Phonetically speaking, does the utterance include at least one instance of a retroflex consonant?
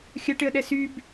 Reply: yes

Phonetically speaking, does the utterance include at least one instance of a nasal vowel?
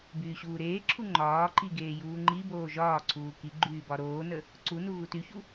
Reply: no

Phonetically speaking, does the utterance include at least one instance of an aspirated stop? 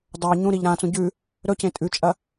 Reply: no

